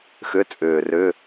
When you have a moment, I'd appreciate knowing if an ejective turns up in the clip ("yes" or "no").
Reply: yes